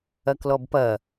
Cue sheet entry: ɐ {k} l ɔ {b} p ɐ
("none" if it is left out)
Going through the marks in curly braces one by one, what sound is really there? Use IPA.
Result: k, b

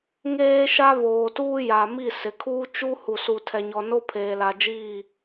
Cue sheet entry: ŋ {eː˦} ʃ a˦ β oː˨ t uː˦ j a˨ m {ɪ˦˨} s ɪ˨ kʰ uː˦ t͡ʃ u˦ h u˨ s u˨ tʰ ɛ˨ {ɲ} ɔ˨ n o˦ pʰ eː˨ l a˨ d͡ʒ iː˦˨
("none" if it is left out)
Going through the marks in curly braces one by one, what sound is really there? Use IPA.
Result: eː˦, i˦˨, ɲ

